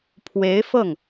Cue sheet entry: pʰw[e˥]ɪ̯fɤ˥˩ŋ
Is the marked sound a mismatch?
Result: yes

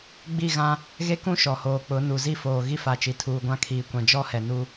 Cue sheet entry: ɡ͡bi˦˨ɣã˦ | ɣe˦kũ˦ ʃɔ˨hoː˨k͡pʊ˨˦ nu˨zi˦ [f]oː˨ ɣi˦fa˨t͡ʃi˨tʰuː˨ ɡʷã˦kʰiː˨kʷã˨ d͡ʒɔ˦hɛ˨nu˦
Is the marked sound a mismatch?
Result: no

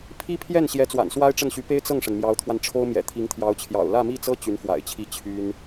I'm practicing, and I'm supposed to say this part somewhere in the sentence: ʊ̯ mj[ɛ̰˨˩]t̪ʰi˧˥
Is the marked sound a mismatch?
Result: no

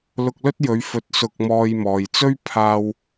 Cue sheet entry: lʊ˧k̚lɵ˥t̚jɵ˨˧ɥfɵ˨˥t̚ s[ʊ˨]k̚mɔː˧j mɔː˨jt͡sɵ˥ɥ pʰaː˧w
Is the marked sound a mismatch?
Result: yes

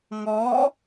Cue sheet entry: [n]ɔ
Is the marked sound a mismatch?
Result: yes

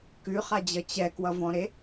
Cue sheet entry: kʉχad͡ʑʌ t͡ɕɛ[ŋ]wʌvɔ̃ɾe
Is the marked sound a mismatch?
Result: yes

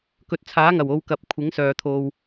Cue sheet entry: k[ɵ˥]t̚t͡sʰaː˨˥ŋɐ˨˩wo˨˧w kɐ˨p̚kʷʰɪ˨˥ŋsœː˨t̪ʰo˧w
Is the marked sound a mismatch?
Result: yes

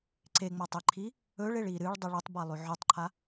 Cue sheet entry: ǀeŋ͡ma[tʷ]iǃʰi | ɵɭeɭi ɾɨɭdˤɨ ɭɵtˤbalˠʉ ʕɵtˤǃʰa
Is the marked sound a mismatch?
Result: yes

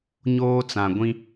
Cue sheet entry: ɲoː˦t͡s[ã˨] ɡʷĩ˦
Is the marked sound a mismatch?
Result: no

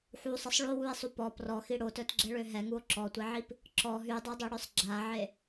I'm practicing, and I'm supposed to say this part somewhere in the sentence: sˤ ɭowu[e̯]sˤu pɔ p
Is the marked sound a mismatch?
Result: no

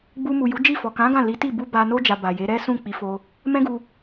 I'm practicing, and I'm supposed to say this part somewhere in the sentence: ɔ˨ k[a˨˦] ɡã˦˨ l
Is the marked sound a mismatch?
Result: yes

